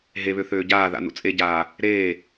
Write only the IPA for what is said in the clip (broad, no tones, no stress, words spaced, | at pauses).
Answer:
ɦeβø θøːɟaːða̰ nṵt͡sʼeɟaː | ɾeː